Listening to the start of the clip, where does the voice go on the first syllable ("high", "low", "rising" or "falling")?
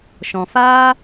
low